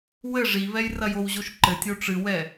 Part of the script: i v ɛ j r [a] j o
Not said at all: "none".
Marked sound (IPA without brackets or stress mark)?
ɐ